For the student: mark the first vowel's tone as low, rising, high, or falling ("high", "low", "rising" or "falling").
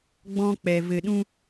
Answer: high